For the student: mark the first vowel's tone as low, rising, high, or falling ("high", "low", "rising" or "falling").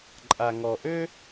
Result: low